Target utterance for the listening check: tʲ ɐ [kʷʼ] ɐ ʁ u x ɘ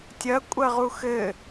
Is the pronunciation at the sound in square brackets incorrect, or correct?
correct